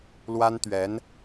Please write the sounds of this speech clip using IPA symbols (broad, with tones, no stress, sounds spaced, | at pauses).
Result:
l w a˥ n t̪ ɥ ɛ˧˥ n